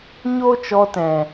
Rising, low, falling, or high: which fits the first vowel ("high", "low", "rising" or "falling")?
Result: high